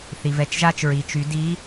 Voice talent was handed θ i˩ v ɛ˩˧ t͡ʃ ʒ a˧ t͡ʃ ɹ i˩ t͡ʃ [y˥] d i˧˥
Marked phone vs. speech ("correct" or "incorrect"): incorrect